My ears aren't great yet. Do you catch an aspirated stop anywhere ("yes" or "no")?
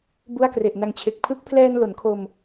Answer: yes